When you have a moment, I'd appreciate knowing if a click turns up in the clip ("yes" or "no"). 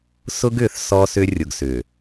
no